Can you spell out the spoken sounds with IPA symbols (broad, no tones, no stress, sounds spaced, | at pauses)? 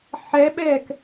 ħ ɛ ɓ ɛ k